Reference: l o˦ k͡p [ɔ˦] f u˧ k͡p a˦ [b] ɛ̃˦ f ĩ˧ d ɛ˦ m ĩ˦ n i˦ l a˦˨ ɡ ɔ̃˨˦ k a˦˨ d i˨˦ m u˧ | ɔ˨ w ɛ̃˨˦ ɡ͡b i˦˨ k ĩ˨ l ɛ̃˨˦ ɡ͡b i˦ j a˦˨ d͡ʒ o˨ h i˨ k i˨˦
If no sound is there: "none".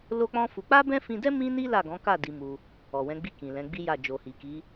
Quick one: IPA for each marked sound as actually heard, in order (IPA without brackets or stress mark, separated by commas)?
ɔ̃˦, b